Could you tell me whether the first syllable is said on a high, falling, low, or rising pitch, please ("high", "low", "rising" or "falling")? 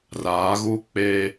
rising